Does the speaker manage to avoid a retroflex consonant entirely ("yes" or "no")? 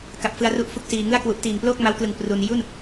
yes